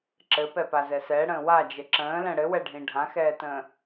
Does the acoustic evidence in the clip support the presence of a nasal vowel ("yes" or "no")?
yes